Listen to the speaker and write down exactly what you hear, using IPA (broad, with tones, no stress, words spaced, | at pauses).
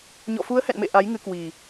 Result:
ɲɔ̰˧˨fu˨˦ə̯hɛ̰˧˨nmḛ˧˨ ʔa˨˦jŋɨ˨˦kwi˨˩